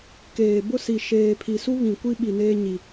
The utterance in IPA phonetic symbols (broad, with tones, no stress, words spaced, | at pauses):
keː˨bʊ˦si˨ ʃeː˨ pʰi˨su˦ βĩ˨ kʷi˦ɓi˨neː˦ ɲi˦